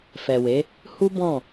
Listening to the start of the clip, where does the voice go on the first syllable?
low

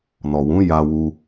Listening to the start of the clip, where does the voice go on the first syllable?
low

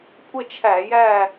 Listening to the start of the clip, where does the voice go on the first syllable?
falling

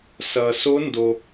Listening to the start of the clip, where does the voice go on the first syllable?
low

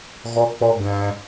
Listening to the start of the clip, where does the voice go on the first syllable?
high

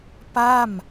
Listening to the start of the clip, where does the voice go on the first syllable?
falling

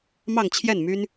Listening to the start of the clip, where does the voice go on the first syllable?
falling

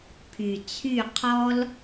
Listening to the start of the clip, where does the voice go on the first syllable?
low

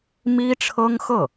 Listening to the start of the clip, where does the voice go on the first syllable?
high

